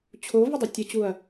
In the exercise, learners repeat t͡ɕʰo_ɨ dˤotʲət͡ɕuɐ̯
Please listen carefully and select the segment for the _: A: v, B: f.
A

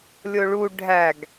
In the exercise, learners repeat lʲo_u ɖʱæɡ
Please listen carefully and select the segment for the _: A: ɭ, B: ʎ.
A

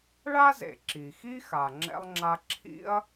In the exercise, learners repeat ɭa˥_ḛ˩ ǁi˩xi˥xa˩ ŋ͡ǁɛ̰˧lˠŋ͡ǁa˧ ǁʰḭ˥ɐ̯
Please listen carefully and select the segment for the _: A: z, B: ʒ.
A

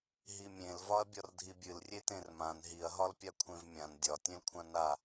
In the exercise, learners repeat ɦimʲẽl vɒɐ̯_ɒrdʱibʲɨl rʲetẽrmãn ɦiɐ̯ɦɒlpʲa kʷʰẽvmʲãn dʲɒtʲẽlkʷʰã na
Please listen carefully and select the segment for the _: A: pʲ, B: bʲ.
B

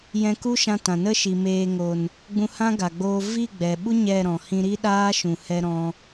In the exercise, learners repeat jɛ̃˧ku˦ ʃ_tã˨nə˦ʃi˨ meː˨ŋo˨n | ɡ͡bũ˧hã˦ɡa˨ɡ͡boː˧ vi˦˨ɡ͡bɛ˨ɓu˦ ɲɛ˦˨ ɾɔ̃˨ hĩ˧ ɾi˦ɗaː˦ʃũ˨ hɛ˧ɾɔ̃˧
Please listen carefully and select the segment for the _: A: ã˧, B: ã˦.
A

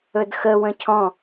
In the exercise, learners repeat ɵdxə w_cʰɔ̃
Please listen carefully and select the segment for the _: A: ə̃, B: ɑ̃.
A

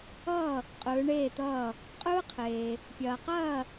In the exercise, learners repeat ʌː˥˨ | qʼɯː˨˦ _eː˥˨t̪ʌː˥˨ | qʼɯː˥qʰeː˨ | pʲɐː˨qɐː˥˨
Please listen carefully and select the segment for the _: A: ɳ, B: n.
A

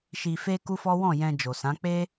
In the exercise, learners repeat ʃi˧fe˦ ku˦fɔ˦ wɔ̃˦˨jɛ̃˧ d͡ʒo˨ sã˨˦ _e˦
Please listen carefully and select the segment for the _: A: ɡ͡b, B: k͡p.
B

